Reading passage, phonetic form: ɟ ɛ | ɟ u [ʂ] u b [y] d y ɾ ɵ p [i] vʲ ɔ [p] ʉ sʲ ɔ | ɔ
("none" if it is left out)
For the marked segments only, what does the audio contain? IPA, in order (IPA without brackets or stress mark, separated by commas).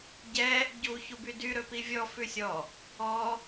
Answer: ç, y, i, f